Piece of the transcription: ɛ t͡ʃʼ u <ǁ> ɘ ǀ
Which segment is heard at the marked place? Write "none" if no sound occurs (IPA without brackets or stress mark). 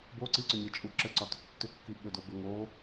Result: ǁ